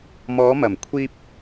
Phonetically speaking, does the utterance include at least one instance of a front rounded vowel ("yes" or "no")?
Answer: no